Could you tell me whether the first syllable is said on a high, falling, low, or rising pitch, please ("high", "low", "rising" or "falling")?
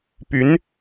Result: rising